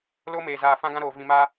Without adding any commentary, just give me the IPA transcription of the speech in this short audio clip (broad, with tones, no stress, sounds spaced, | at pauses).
l o˦ m eː˨ z aː˨ f ã˦ ɡ ã˦ ɾ oː˨ v ĩ˨ m a˦